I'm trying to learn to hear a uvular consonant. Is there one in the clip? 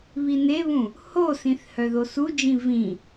no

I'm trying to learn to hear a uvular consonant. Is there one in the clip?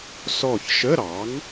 no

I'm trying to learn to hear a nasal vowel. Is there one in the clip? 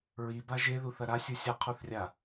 no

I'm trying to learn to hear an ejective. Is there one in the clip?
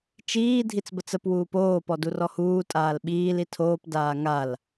yes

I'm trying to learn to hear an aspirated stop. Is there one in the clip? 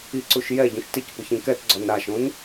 no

